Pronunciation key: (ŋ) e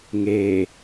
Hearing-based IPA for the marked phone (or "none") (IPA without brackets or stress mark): ŋ